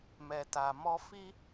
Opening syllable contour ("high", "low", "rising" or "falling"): low